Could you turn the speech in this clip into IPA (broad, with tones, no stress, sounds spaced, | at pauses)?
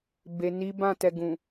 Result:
b e˨ n i˨˦ b ã˦˨ t ɛ˨ ɡ ũ˨